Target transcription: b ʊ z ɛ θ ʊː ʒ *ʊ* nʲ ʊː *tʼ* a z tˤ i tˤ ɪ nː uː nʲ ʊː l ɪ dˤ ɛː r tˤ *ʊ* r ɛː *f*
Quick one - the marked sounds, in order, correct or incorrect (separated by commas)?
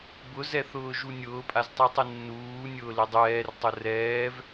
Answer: incorrect, incorrect, correct, incorrect